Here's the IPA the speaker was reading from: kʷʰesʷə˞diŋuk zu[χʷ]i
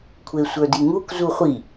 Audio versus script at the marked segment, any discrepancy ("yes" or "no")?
no